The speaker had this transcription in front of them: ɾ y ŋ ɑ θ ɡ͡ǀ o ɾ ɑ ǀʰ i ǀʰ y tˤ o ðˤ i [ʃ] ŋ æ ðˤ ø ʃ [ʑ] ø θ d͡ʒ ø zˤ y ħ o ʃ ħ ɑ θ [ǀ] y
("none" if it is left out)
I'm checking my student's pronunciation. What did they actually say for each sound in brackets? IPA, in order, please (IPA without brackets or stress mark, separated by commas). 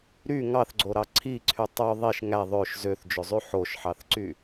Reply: ʃ, z, ǀ